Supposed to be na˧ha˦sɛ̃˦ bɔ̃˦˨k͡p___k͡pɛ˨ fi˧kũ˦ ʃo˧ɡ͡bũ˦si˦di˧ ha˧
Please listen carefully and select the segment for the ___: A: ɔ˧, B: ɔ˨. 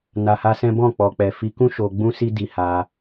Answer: B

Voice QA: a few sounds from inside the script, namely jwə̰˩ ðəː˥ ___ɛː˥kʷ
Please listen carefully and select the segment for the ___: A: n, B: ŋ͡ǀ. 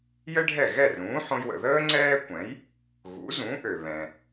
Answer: B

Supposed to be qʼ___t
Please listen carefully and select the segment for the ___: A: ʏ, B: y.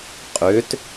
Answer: A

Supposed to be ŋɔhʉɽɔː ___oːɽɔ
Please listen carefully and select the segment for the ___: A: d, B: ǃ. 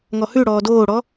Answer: A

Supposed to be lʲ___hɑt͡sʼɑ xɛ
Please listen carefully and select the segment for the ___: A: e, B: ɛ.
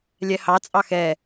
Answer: B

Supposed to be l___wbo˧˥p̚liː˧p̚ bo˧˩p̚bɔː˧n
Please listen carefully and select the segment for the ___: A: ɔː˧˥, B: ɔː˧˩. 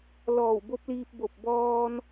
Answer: B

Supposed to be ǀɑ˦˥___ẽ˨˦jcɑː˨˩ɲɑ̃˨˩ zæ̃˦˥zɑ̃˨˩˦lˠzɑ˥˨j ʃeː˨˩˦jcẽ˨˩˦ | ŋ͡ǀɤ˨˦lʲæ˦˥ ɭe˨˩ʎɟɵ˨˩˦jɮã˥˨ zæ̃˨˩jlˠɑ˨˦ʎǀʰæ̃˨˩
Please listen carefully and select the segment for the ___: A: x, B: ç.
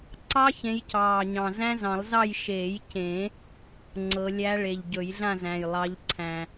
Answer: B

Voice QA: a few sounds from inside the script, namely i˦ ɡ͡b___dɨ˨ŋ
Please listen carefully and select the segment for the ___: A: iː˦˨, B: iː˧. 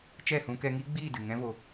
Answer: A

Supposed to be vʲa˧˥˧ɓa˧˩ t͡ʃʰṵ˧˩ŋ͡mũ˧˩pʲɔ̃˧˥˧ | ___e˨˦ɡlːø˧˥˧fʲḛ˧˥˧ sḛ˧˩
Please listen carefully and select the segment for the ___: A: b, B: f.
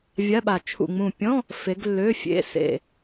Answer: B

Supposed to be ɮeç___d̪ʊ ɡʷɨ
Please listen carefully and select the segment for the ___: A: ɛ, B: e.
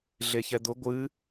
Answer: A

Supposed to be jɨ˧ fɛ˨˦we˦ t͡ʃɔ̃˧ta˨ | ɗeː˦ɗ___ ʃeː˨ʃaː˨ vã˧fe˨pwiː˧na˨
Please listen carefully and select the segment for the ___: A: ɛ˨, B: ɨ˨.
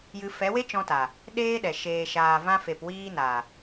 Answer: A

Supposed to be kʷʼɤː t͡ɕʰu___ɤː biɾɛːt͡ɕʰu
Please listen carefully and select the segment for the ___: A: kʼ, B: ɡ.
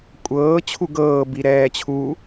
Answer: B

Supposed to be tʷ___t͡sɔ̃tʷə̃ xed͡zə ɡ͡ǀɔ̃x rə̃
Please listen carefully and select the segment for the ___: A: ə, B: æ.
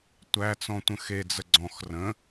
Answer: B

